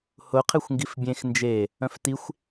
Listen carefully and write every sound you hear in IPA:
h ʊ qʰ e xʷ ŋ ɡ i f bʲ ẽ x n d͡ʒ e | œ̃ f t i xʷ

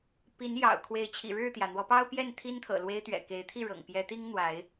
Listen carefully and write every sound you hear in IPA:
p i˨˦ n j ɑ̰˨˩ ʊ̯ kʰ w e˨˦ ɪ̯ t͡ɕʰ ḭ˨˩ ɻ ɻ̩˥˨ t̪ j ä˩ n̪ w ɔ˨˦ p ɑ˦ ʊ̯ p j ɛ˥˨ n t̪ʰ i˦ n t̪ʰ ɤ̰˨˩ l w e˦ ɪ̯ t̪ ɥ ɛ̰˨˩ k e˨˦ ɪ̯ t̪ʰ i˥˨ ɻ ɤ̰˨˩ ŋ p j ɛ˨˦ t̪ i˦ ŋ n̪ w a˨˦ ɪ̯

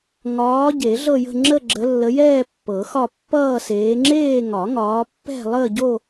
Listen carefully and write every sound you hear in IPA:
ŋ ɒː˨˦ ɟ e˨˩˦ ɮ ɤ˥˧ j ə̤˥˧ ŋ͡ǁ ə˥˧ ɡ͡ǁ ə˨˦ lː ə˨˦ j ɛː˥˧ pː ɤ˨˩˦ x ɒ˥˧ pː ʌː˥˧ s eː˨˦ ŋ͡ǁ eː˥˧ ŋ ɒ˨˩˦ ŋ ɒː˨˦ pː ɛ̤˥˧ lˠ əː˥˧ ɟ o˥˧

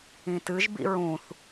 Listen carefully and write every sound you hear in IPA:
ĩ t ɨ ʒ b ḭ ɹ ũ θ

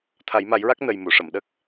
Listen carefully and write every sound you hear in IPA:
t̪ʰ a˨˩˦ j m a˨˩˦ j ɹ a˦˥ k̚ n ə˧ j m u˨˩˨ ʂ ə˨˩˨ m ɗ ə˦˥ k̚

